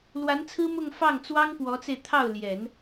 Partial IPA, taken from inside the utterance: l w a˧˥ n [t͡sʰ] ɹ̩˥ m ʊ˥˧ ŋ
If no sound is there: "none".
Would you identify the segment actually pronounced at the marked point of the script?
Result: t͡sʰ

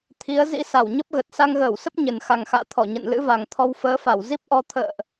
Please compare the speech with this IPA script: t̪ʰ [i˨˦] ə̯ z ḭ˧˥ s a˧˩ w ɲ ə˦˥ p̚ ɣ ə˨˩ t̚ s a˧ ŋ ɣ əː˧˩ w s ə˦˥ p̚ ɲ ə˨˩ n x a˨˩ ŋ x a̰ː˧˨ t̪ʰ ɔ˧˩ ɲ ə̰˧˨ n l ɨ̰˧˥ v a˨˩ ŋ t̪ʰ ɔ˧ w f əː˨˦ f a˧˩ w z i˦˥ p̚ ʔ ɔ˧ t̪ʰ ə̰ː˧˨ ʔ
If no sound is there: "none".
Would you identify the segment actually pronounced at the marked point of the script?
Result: i˨˦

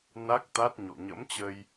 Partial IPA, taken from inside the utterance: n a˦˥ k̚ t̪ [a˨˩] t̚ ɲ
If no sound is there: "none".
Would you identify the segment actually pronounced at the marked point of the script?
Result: a˦˥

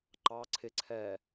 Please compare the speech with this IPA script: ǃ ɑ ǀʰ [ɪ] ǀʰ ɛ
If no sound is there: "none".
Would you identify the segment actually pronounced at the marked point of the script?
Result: ɪ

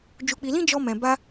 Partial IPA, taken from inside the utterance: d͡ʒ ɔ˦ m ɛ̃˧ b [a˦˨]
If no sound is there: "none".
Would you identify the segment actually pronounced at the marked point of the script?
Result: a˦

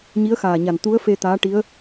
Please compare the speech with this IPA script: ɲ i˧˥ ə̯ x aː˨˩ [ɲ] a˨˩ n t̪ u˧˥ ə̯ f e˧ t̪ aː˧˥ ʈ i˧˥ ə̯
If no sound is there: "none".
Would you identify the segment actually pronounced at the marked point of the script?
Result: ɲ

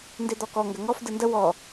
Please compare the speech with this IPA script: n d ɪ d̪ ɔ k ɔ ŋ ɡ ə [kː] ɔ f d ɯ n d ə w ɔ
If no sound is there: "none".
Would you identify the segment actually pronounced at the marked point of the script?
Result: ŋ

